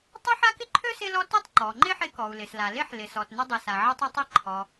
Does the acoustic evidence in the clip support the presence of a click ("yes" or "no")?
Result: yes